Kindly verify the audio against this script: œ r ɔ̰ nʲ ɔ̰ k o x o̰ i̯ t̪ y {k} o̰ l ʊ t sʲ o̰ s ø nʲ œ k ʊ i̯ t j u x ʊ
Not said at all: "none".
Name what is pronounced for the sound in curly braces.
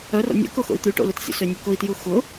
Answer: ʈ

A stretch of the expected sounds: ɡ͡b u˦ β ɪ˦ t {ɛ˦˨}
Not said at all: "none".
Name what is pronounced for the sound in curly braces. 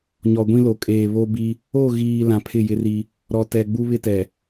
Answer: ɛ˨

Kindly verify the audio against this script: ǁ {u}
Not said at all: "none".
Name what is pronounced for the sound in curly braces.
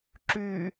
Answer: y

